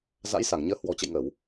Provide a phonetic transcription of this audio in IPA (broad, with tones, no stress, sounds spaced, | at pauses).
z a̰˧˥ j s a˧˩ ŋ ɲ əː˨˦ h w ɔ̤˨˩ t͡ɕ ə̰˧˨ j ŋ ə˧˩˨ w